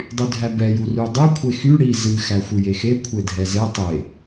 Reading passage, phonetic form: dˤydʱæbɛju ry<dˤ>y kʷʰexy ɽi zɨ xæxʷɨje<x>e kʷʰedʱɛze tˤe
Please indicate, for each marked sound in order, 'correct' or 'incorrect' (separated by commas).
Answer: correct, correct